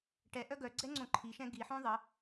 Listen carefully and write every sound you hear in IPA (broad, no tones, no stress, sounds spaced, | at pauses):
ʈ ɛ ʔ œ ɡ œ ɡ͡ǀ ɛ ŋ͡ǀ õ ǃʰ i ʃ ɛ̃ ɡ i ħ õ ðˤ ə